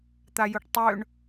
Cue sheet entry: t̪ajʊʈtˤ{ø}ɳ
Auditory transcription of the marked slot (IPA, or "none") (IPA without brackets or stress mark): ø